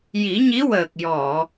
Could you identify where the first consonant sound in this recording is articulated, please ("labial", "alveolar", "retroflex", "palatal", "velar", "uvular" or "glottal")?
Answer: palatal